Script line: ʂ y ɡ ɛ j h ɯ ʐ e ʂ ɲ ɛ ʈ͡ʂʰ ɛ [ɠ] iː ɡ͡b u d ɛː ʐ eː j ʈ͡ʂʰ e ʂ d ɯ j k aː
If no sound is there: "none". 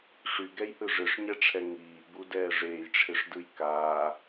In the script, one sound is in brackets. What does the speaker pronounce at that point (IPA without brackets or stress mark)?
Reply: ŋ